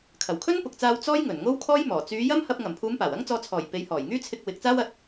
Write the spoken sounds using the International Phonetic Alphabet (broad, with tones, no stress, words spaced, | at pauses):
kʰɐ˨˩wkʰɵ˥npʊ˨k̚t͡saː˧w t͡sɔː˥jŋɵ˨˩nŋo˥w kʰɔː˥jmɔː˨˩ t͡syː˨˧jɐ˥mhɐ˧p̚ ŋɐ˨˩mpʰuː˨˧m paː˨˩wɐ˥ŋt͡sɔː˧ t͡sʰɔː˨˩j pe˨˧j hɔː˨˩jŋyː˥t͡sʰɪ˧k̚ wɪ˨˥k̚t͡saː˥wɐ˧t̚